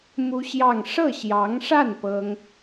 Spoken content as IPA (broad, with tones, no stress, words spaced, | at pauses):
mu˥ɕjɑ˥˧ŋ ʂɤ˥˩ɕjɑ˧˥ŋʂa˥˩n pɤ˥ŋ